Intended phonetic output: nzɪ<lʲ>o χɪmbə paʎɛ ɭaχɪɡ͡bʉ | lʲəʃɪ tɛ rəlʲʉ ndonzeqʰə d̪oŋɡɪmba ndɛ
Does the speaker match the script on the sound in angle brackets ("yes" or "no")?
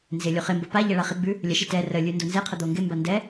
yes